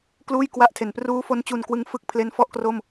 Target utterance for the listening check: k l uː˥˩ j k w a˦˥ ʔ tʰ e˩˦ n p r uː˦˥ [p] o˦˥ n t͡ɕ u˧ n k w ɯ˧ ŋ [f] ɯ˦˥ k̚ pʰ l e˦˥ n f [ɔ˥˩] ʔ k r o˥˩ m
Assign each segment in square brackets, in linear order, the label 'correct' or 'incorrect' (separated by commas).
incorrect, correct, correct